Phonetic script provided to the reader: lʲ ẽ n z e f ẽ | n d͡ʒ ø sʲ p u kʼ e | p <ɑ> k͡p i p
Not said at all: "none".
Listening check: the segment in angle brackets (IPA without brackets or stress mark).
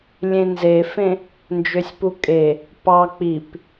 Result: ɑ